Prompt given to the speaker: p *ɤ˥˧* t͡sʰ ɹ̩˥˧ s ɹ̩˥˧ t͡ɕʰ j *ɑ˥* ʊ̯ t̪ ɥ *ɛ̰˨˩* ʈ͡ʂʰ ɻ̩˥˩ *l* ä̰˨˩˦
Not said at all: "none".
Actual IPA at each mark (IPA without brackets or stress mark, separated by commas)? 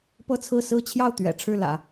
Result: ɤ˥˧, ɑ˥˩, ɛ̰˨˩, l